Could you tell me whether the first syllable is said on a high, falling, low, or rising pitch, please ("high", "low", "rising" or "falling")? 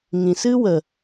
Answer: low